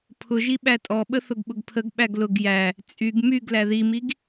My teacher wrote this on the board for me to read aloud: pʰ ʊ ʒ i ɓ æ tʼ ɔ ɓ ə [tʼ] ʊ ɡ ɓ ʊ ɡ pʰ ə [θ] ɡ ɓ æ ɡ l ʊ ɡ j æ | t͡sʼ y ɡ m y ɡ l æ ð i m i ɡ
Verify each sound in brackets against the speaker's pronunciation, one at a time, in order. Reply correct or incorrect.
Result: incorrect: θ, incorrect: none

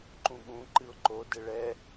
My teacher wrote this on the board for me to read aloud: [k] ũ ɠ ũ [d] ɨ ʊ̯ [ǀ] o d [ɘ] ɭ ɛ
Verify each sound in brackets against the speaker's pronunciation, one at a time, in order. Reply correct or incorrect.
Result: incorrect: ǃ, incorrect: ǃ, incorrect: ǃ, correct

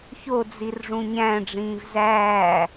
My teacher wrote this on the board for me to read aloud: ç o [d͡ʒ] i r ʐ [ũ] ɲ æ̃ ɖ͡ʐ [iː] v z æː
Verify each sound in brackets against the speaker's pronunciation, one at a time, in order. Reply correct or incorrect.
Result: incorrect: d͡z, correct, incorrect: ĩː

